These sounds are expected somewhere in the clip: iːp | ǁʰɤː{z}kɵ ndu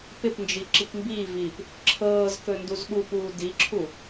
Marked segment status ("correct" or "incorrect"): correct